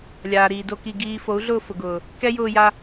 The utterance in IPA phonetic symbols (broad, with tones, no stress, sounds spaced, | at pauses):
lʲ aː˨ ɾ iː˨ d o˧ k i˧ ɡ iː˨ f o˨˦ u̯ ɮ ʊː˧ f ʊ˨ ɡ ʊː˨ | k ɛ˦ j ʊː˧ j a˧